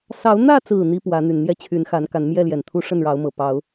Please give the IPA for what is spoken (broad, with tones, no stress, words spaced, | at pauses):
sɑ˨˦ʊ̯n̪ä˥˨t͡sɹ̩˨˩ n̪i˦pwä˨˦n̪y˨˩n n̪jɛ˦t͡ɕʰy˨˦nxa˨˦nka˨˦n mjɛ˥˨ljɛ˨˩nt̪ʰu˦ ʂə˥˨nɻɑ˨˦ʊ̯mɤ˨˩ pɑ˨˦ʊ̯